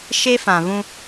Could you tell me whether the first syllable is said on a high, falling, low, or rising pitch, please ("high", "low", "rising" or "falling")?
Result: high